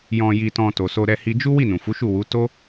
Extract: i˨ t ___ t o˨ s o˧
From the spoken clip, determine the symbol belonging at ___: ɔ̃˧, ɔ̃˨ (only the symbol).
ɔ̃˨